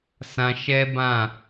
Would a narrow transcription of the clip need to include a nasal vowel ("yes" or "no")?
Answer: yes